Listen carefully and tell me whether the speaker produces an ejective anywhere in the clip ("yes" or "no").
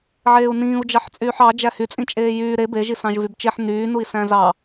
yes